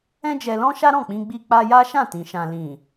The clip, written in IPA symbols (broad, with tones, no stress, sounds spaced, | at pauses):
ɛ̃˦ d͡ʒ ɛ˧ l ɔ̃˦ ʃ a˦ ɾ ɔ̃˦˨ k͡p ĩ˧ ɡ͡b i˧ k͡p a˧ j a˦ ʃ ã˦˨ t ĩ˨ ʃ ã˨ l ĩ˨